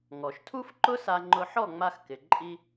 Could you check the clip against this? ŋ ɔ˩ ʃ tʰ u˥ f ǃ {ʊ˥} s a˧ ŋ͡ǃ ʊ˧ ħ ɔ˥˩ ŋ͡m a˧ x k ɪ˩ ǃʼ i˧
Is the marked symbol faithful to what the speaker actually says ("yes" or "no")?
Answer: yes